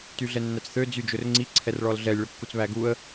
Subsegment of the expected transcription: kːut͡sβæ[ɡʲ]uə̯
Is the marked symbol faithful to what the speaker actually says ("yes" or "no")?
no